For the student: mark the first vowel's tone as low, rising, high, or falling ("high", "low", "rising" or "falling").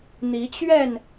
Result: rising